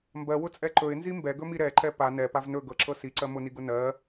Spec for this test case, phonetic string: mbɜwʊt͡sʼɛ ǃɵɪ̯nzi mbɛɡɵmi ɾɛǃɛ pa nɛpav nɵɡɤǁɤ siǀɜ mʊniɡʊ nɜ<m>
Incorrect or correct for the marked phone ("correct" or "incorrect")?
incorrect